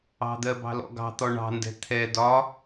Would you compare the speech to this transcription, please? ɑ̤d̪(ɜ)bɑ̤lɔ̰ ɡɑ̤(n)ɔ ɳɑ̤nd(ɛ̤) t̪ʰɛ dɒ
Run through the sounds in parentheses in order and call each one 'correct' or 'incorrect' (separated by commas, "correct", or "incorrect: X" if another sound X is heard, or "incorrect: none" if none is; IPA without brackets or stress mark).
correct, incorrect: t̪, correct